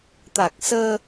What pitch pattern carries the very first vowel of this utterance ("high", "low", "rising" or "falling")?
low